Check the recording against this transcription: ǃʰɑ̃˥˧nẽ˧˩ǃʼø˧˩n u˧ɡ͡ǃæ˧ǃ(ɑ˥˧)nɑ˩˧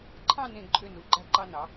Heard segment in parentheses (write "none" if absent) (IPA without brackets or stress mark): ɑ˧